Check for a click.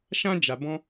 absent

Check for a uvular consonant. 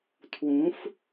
absent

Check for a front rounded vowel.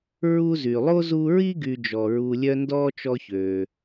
present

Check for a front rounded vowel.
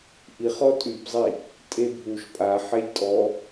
present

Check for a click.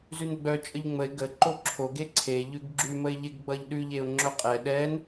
present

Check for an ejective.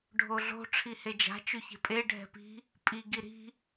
present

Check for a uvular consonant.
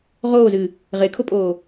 present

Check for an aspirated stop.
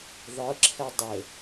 present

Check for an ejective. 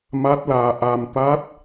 absent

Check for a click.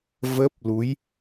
absent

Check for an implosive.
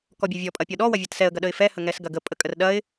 present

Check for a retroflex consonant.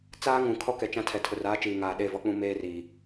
absent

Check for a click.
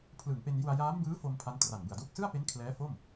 absent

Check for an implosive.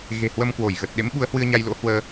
present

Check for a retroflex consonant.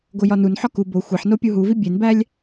absent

